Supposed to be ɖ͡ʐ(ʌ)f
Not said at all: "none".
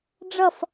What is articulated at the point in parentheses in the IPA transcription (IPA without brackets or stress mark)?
ʌ